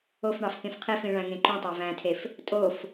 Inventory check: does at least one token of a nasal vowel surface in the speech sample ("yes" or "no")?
yes